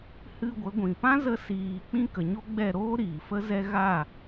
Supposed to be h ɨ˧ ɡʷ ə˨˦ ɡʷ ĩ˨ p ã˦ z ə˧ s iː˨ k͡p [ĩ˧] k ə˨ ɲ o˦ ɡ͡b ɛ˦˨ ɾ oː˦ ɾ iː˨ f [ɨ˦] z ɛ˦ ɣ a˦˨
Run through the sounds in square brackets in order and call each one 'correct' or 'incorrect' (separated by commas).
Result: correct, incorrect